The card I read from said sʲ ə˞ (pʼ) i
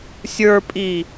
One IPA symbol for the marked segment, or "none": pʼ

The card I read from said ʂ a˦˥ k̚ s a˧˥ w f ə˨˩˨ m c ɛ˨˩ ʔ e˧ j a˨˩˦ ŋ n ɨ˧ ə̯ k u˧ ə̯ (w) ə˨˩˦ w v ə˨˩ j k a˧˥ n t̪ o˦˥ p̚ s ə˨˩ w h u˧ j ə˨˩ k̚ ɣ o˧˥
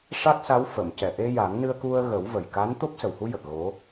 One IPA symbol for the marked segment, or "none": ɣ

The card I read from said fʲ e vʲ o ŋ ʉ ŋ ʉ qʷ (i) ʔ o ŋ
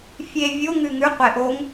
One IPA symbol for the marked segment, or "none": e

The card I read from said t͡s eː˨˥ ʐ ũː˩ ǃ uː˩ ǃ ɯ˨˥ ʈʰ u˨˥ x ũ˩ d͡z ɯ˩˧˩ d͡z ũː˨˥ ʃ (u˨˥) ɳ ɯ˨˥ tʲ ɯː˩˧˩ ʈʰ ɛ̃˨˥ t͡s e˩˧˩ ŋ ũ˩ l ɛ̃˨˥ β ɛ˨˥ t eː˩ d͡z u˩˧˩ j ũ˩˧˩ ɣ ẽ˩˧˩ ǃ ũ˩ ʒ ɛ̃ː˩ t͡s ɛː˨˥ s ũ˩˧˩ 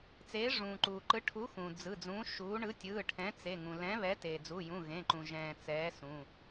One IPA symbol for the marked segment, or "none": uː˨˥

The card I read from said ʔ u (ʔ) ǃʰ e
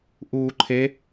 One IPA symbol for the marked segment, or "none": none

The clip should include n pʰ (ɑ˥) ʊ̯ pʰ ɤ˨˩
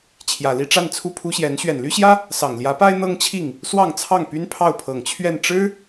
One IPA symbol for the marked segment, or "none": ɑ˥˩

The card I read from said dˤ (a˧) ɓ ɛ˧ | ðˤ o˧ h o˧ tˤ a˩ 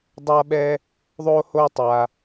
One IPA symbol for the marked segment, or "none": a˧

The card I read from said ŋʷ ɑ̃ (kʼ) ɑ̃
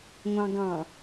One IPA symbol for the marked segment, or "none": ɡ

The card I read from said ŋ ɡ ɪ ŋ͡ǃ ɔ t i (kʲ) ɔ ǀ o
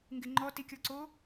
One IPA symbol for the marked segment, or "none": kʲ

